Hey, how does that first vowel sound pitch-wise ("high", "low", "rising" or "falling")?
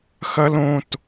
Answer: high